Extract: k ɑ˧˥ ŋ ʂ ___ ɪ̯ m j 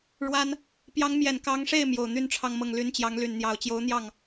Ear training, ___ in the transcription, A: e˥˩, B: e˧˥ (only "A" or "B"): A